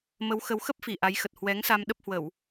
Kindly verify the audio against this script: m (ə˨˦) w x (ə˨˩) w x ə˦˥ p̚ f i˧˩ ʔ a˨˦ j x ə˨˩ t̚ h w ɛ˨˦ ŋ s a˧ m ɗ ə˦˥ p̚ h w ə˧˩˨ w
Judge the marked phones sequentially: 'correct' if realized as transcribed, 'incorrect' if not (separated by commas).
correct, incorrect